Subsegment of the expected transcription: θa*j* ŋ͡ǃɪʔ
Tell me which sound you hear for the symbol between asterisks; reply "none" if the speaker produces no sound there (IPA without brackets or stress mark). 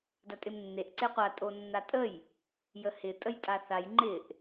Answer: j